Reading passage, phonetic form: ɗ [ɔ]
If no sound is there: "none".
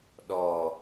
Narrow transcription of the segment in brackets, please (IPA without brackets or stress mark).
ɔ